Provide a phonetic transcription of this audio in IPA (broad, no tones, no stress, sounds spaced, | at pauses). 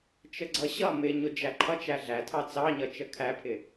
t͡ʃ ə ɡ͡ǀ ʌ ɕ ʌ m ɪ ɲ ʊ d͡ʒ æ ǃʰ ʌ t͡ʃ æ ɮ æ tʰ ɑ t͡s ɑ ɲ ʌ t͡ʃ ə kʰ æ pʰ ɪ